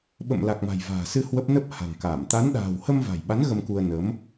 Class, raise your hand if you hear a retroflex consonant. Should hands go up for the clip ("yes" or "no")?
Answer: no